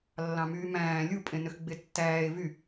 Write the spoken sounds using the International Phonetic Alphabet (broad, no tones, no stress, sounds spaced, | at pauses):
lː ɑ̃ m yː m æ̃ː lʲ u pʼ ẽ n ø x ɡ͡b e tː æː e̯ v y